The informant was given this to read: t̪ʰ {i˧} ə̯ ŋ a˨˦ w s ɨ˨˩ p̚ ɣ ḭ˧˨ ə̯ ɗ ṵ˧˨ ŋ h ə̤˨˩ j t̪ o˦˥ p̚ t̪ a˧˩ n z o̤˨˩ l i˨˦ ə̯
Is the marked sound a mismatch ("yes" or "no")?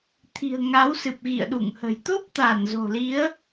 yes